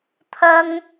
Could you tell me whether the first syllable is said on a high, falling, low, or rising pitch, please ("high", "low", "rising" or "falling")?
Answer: high